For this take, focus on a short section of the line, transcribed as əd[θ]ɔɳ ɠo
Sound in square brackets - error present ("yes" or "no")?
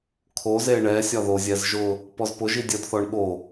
no